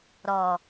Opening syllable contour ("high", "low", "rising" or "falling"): low